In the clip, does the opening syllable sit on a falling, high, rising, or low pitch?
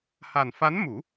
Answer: low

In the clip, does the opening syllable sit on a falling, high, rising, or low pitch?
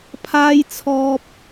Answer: high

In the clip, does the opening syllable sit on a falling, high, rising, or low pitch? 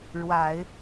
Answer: low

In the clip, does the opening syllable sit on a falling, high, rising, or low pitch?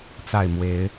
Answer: falling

